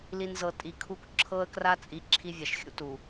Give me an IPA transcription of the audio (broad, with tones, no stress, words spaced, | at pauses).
li˨nzɤ˨ tʼi˨kʰu˦k ǁʰɤ˦ə̯kra˦t͡sʼi˨˦ ǁʰi˦vʲa˨ʃxʲṵ˦tu˨